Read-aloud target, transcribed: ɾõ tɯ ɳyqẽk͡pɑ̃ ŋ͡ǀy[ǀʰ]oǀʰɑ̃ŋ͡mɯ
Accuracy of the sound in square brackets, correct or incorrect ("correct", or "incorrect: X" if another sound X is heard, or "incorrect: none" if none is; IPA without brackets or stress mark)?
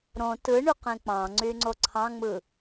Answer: incorrect: ŋ͡ǀ